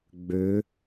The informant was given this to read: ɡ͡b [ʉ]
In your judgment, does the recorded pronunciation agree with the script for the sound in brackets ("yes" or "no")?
no